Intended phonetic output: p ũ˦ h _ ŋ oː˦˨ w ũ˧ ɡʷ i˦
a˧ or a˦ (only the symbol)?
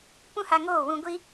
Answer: a˧